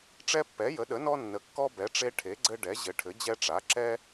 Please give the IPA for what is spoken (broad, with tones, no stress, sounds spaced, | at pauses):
ʈ͡ʂ ɛ˦ pː ɛ˩˥ j ə˩˥ ɗ ə˩˥ n ɔ˦ nː ə˩˥ kː ɔ˦ b ɛ˩˥ ʈ͡ʂ e˦ ʈʰ e˩˥ ɡ͡ǀ ɘ˦ ɖ ɛ˩˥ ʑ ɘ˩˥ ʈʰ ɘ˩˥ d͡ʑ ɛ˦ ʈ͡ʂ a˩˥ ǁ ɛ˦